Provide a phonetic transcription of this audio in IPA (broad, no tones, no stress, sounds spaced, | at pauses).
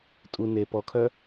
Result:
tʼ u n e p ɔ kʰ œ